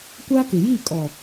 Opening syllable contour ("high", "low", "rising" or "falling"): high